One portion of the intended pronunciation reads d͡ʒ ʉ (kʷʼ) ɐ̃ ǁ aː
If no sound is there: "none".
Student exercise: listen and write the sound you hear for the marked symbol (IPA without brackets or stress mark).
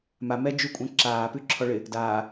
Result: kʷʼ